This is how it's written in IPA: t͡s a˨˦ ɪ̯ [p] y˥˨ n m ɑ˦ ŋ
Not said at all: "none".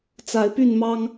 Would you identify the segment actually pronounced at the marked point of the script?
p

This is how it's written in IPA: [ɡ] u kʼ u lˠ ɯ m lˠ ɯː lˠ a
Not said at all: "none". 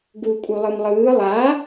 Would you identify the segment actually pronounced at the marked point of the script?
ɡ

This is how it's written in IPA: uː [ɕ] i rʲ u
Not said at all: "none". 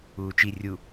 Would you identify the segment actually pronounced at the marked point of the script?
t͡ʃ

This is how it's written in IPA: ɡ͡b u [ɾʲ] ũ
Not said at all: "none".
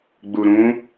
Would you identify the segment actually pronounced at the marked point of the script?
ɾ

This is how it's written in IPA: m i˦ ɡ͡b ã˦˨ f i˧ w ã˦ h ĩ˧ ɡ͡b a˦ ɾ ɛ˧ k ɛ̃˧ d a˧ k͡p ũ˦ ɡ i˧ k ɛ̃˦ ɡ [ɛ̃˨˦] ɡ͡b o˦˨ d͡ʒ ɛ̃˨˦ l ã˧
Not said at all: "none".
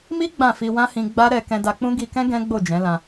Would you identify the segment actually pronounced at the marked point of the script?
ɛ̃˦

